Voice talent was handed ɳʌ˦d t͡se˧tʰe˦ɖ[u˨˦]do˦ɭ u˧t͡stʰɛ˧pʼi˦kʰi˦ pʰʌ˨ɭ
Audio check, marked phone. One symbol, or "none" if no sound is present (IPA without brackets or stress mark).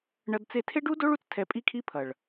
u˦